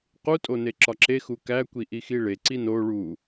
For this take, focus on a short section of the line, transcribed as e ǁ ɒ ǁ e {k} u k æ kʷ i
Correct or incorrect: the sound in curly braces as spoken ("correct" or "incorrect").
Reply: incorrect